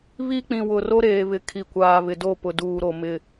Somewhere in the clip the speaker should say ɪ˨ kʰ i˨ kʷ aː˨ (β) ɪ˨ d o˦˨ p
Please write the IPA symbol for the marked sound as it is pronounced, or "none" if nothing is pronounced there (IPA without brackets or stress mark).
β